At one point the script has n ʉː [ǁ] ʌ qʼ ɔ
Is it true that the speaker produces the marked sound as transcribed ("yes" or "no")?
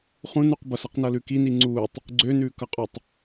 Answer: no